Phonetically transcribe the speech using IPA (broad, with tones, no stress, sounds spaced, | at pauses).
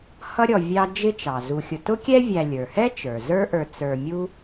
h ʌ˦ ɾʲ ɔ˨ vʲ ɑ˦ d͡ʒ ɪ˦ t͡ʃ ɑ˩ z u˨ xʲ ʊ˨ t ʊ˥ kʲ ɛ˥ vʲ æ˨ lʲ ə˞˩ h ɛ˥ t͡ʃ ə˞˩ z ə˞˦ ʔ ə˞˨ t͡s ə˞˨ mʲ u˦